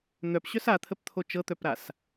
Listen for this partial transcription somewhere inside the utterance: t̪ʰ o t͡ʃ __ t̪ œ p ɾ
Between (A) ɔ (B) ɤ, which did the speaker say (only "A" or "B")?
B